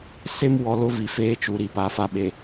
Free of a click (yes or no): yes